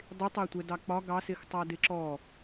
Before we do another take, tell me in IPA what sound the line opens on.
dˤ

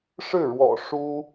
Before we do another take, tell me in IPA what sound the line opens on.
ʂ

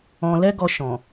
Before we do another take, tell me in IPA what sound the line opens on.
ɔ̃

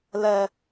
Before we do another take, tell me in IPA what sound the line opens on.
l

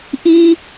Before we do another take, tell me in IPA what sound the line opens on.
ʔ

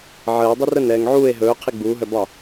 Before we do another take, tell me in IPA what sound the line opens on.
ʕ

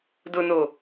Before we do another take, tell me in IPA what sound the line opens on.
d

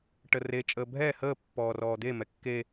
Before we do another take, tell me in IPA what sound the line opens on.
ʈ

